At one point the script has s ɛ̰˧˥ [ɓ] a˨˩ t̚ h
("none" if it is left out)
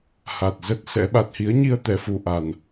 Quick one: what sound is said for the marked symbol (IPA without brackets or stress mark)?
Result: ɓ